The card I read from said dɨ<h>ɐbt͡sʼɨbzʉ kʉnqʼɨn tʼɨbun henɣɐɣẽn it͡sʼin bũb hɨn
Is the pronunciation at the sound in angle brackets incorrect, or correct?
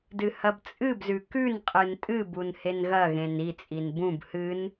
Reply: correct